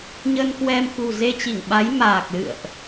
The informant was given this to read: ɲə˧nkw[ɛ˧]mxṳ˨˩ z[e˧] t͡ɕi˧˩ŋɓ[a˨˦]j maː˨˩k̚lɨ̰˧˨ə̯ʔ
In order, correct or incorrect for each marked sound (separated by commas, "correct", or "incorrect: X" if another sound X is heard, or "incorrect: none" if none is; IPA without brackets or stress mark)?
correct, correct, correct